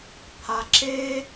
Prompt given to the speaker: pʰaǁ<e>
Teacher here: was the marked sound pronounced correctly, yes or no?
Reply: yes